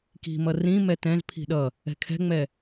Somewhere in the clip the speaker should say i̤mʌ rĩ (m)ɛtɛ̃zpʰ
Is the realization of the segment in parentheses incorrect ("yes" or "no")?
no